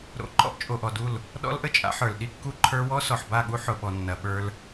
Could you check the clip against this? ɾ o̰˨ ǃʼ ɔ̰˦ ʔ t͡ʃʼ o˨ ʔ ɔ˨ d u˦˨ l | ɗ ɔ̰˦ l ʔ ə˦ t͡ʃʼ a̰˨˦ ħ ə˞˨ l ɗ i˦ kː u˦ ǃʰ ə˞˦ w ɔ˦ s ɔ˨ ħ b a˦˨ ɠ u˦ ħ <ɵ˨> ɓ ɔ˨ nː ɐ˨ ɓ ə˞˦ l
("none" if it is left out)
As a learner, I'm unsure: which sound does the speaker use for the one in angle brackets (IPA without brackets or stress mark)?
ʊ˨